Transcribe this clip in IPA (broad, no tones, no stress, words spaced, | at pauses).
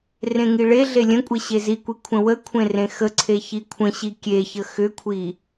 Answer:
rẽŋiɭeɮe lʲə̃kʷʼe ɕezikʷi kʷʰə̃wəkʷʰẽ rẽxəǀʰe çikʷʰə̃ɕi kʲeçə xʏkʷʰi